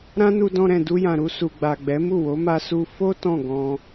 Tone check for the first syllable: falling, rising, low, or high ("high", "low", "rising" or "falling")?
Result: high